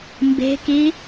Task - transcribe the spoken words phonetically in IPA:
m b e̤ k i

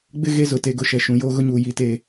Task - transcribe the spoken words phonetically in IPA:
ɡ͡b ɪ˦ ɣ e˦ z ʊ˨ t e˨ ɡ ʊ˨ ʃ ɛ˨ ʃ ũ˨ j oː˦ ɣ ʊ˦ ɲ uː˨ j i˦˨ t e˦˨

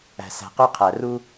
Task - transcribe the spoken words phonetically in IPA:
æ̤˨ s æ̤˨ q y˦ qʰ æ˨ r u˦

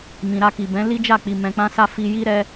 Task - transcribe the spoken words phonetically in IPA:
m ĩ˨ ɾ a˧ k i˨ b ɛ̃˨˦ l i˦ d͡ʒ a˦˨ k͡p i˨ m ɛ̃˧ k͡p ã˦ s a˦ f i˧ j i˦ ɾ ɛ˦

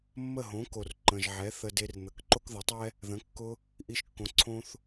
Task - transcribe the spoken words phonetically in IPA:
mː ə˥˩ ɦ õ˩˥ k o˩ r ǃ ə̃˩ ʒ ʕ ɛ˩˥ θ ə˧ d e˧ r n̪ ə˩ k ǃ o˥ k ð ə˩˥ tˤ ɛ˥ | ð ə̃˩˥ kː ʊ˧ | ʔ i˧ ʃ kː õ˩˥ ǀʰ õ˧ θ

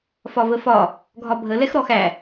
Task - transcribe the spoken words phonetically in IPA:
f ɒ v ə f ɒ | ɡʱ ɒ bʱ ə l ɛ x ɾ ɔ x æ

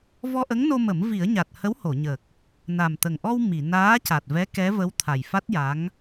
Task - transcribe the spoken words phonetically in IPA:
v ɔ˧ ʔ ə˧˥ ŋ n o˧ m ə˨˩˦ m v i˨˩˦ ə̯ ɲ a˨˩ t̚ h ə˧˥ w h o˨˩˨ ɲ ə˨˩ k̚ | n a˨˩ m t̪ ə˨˩ ŋ ʔ ɔ˧ w m i˨˩˨ n aː˧˥ c a˨˩ t̚ v ɛ˧˥ k ɛ˧˥ v ə˧˥ w t̪ʰ a˨˩ j f a˦˥ t̚ j a˧˥ ŋ

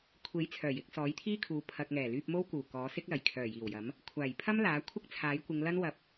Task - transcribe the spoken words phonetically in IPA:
kʷʰ e˨˥ j t͡sʰ œː˨˩ j ɪ˨˥ k̚ s ɔː˨˥ j t̪ʰ iː˥ kʰ uː˨˥ pʰ ɐ˨ k̚ ŋ ɛː˨˩ l yː˧ p̚ m o˥ w k uː˨˩ k ɔː˨˥ s ɪ˥ k̚ l ɐ˨˩ j kʰ œː˨˩ j iː˨˩ w j ɐ˨˥ m | kʷʰ aː˨˩ j pʰ ɐ˥ m l aː˨˥ kʷʰ ɪ˥ k̚ t͡sʰ aː˨˥ j kʷ ɪ˨˧ ŋ l ɐ˥ n w ɐ˧ p̚

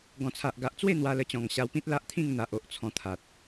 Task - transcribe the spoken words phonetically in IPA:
ɡ ɔ̃˨˩ t͡sʰ a˨ ʔ ɡ a˨ ʔ t͡s w e˥˧ n̪ w a˧ l ə˧ t͡ɕ ɔ̃˨˩ ŋ ɕ a˧ w p ĩ˦ t̚ l a˦ ʔ t̪ʰ ĩ˥˧ ŋ n̪ a˨ ʔ o˨ ʔ t͡sʰ ɔ̃˧ t̪ʰ a˨ t̚

